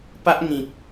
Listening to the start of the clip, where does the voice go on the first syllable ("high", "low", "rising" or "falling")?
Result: high